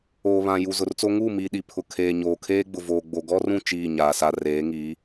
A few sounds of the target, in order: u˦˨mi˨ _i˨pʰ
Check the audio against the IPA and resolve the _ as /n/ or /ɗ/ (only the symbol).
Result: ɗ